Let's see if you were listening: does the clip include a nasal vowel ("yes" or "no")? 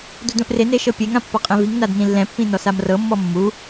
yes